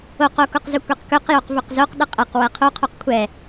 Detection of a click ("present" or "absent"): absent